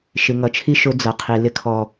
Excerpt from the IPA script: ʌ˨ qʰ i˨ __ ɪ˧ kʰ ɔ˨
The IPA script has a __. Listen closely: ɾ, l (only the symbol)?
l